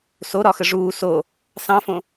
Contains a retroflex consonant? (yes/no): yes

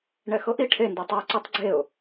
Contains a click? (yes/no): yes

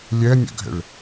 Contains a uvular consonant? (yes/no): no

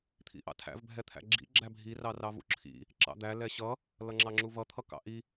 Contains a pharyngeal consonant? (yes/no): no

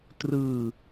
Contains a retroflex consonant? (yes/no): no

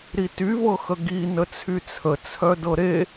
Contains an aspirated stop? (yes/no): yes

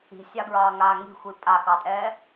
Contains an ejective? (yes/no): yes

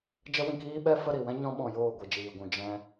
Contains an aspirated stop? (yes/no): no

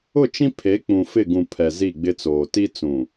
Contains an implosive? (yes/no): no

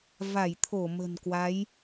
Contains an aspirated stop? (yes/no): yes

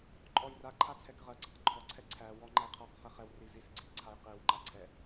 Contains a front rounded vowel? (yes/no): no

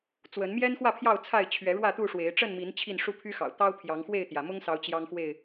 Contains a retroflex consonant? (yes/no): yes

